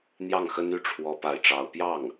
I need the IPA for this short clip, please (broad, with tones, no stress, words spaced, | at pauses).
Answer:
n̪jɑ˥˩ŋxə˥ny˥˩ ʈ͡ʂʰwɔ˥pa˥˩ɪ̯ʈ͡ʂɑ˥ʊ̯ pjɑ˥˩ŋ